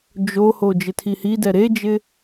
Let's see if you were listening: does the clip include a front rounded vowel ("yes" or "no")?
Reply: no